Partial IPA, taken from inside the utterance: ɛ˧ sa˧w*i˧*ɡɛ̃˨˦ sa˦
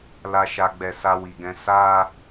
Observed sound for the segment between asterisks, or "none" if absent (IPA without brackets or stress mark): i˨